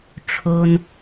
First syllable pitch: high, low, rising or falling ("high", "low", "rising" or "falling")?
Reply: low